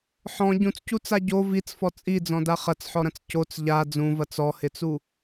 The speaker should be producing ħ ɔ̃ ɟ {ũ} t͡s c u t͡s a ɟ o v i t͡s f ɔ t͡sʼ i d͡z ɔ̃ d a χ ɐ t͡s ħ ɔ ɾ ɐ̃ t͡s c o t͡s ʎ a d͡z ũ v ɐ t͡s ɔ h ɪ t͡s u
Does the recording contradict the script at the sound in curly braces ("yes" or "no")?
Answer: no